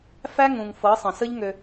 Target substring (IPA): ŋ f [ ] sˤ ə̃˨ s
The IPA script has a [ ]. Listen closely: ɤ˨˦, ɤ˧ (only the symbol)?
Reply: ɤ˨˦